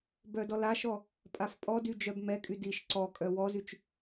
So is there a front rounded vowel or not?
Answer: yes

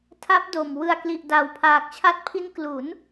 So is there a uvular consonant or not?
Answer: no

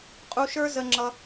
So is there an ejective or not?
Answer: yes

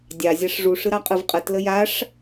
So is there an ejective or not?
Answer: yes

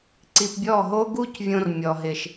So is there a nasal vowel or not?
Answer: yes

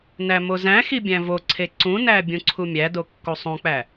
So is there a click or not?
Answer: yes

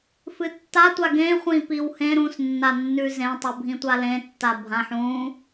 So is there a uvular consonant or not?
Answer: yes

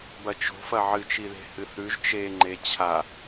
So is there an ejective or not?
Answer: no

